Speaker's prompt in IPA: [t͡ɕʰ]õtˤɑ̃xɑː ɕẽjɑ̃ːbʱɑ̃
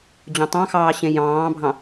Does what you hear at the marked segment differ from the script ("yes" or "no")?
yes